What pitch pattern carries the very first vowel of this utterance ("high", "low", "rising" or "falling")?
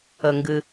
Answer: low